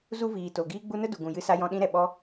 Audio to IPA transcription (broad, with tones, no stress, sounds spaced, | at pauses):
z u˦ v iː˨ t o˨ ɡ iː˧ ɡ͡b u˧ n ə˦ d u˨ ɡ ũ˨ j ɨ˧ s a˧ j ɔ̃˧ ɗ ĩ˦ ɾ ɛ˨ ɓ ɔ˦